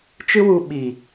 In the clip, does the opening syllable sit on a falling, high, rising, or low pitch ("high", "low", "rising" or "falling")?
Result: high